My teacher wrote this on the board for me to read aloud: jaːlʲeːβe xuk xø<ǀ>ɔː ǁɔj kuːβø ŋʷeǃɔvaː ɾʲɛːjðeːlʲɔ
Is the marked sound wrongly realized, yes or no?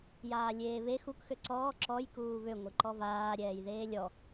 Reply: no